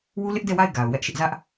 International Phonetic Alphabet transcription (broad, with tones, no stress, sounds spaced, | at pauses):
w u˦ l ɪ˦ ʔ d ɛ˦˨ w a˦˨ ɪ̯ ɡ a˨ ʊ̯ w ɛ˦ ʔ ʃ ɪ˦ ʔ z ä˦ ʔ